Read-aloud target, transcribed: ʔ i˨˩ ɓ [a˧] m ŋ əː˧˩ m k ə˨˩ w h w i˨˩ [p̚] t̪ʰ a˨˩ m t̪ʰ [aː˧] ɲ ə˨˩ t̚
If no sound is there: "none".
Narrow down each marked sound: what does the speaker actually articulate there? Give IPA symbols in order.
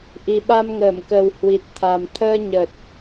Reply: a˧, t̚, əː˧

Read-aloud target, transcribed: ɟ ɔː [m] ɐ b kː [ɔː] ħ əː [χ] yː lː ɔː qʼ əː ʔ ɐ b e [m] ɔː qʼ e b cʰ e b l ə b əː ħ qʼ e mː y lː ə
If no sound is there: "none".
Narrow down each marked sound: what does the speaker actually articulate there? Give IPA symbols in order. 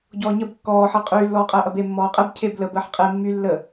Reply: ɲ, ɔː, qʼ, mː

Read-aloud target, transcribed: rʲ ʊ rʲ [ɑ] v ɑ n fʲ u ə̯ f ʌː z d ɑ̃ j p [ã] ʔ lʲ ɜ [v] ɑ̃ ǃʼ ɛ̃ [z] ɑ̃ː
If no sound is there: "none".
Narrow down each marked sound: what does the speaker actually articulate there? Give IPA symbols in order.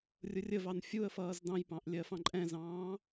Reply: ə, ɑ̃, f, z

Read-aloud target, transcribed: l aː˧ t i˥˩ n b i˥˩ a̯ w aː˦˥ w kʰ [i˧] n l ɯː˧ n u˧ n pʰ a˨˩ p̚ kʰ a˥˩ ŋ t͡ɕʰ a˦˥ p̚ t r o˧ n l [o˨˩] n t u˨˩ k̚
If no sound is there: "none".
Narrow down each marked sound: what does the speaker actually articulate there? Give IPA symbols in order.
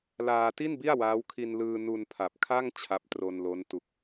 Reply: i˧, o˦˥

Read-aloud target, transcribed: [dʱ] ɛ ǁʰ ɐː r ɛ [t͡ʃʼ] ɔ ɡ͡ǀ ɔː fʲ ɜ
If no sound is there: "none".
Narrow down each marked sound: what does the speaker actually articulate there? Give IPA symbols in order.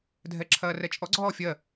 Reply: dʱ, t͡ʃʼ

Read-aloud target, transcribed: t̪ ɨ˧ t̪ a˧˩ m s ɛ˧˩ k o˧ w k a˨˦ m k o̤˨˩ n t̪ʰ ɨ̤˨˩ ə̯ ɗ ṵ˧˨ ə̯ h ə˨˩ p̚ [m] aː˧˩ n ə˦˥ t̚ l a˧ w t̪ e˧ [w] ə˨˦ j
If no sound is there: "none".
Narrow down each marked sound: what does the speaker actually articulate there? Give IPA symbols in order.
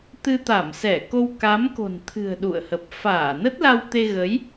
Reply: f, ɣ

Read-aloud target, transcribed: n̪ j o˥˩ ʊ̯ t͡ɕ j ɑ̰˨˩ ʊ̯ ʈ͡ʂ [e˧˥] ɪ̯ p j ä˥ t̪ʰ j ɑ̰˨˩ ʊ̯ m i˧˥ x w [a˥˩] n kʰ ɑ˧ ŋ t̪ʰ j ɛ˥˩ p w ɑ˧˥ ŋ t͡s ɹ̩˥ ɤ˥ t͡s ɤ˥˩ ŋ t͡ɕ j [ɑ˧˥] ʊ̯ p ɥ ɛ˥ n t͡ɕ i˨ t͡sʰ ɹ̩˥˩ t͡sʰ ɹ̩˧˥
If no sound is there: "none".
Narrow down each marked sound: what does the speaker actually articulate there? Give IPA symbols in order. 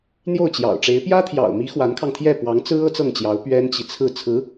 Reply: e˧˥, a˧˥, ɑ˧˥

